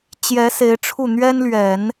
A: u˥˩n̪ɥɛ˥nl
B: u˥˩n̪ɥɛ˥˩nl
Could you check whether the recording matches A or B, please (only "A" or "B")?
A